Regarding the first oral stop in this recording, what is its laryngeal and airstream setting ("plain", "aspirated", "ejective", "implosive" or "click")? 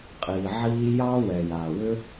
ejective